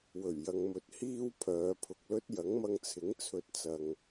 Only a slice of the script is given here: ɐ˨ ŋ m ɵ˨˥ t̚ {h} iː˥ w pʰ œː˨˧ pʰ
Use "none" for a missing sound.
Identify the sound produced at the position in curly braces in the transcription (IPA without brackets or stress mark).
h